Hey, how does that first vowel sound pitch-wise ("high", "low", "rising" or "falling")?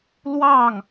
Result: falling